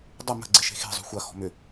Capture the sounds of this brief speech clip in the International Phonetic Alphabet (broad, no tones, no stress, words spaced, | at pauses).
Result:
dˤʊ mə̤ɡ͡ǀɪ ʃe̤xe̤zˤṳ xʷɐxɔ̤ mʏ